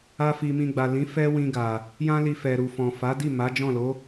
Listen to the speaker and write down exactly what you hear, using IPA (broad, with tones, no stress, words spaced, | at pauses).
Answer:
a˦fi˧mĩ˧ ɡ͡ba˨lĩ˨˦ fɛ˦wĩ˧ ɡa˨ | jã˦li˧fɛ˨ ɾu˨fɔ̃˨ fa˨˦di˦˨ ma˨˦d͡ʒɔ̃˦˨lo˨˦